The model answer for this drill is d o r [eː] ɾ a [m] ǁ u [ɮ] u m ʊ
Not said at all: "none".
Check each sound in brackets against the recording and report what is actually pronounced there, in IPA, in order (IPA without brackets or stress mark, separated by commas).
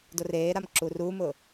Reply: eː, m, r